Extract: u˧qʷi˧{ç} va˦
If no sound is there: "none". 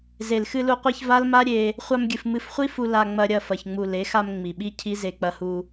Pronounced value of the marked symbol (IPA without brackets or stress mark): ç